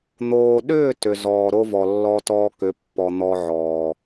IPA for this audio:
n̪ oː˨ ɗ ʏː˦˨ t ʏ˨ z ɔː˨ ɾ o˦ v ɔ˨ lː ɔ˦ t ɔː˦ k ʏ˨˦ pː ɔ˨ n̪ ɔ˦ ʕ ɔː˨

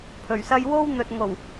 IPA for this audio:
pʰ ɵ˨˩ ɥ s ɐ˥ j w o˥ w n̪ ɵ˨ t̚ ŋ o˨˩ w

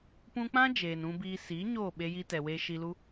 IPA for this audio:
p ũ˧ k͡p ã˦ d͡ʒ eː˨ n ũ˧ b iː˧ s iː˨˦ ɲ oː˦˨ ɓ e˧ j i˧ t ɛ˨ w eː˧ ʃ i˧ l u˦

